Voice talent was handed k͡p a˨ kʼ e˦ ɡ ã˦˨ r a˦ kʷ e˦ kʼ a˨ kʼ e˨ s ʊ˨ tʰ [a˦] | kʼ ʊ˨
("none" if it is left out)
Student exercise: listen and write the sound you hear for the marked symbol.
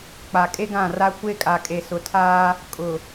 aː˦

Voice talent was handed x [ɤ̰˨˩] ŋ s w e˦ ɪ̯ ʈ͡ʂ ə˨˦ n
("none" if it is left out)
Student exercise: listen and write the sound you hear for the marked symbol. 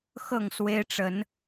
ɤ˥˨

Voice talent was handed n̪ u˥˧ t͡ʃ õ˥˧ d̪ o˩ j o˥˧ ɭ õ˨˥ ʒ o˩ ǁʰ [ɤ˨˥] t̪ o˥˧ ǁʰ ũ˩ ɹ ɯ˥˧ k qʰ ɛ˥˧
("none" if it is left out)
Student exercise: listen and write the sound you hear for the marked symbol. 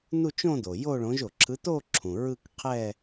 ɯ˨˥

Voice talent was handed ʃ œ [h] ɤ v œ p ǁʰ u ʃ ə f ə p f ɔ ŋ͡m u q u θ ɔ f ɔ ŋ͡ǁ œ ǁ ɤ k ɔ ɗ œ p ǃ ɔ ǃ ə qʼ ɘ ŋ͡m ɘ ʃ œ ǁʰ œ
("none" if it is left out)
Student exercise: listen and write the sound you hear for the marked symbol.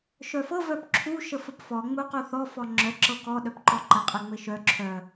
f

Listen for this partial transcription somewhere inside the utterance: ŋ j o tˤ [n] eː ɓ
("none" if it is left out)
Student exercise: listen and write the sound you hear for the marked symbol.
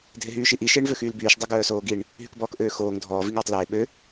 l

